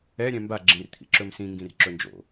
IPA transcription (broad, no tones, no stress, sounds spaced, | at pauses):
ɛ ɾʲ ɛ̃ m b a ɡ͡ǁ ĩ r t̪ʰ ḭ ǁ ɵ m s ĩ ŋ ɡ ĩ r ǁ ɵ n d͡ʒ o̰